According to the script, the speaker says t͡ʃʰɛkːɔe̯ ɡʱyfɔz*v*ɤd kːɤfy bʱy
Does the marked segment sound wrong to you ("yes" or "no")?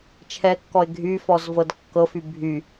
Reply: no